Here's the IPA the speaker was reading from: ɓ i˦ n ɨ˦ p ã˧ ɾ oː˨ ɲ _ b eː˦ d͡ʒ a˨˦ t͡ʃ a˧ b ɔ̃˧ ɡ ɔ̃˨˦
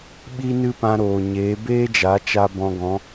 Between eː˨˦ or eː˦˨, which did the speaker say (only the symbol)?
eː˨˦